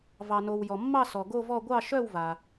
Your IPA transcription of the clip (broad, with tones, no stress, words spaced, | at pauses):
vɑ˩no˩w jɔ˩mːɑ˥˧ sɔ˩ ɡo˥˧vɔ˥˧ ɡʷɑ˥˧ʃœ˥˧wva˩